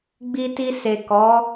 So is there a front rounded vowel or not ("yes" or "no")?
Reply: no